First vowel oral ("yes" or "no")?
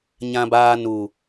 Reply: no